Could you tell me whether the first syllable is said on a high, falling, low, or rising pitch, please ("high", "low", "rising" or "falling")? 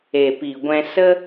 low